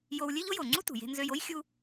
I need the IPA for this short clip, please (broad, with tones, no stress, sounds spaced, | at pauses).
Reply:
j o˧ w lʲ ø˥ ʎ o˥ j o˩ ŋ͡ǀ u˥ t ṳ˩ j e̤˧ n z ø˧ j o˥ j xʲ u˧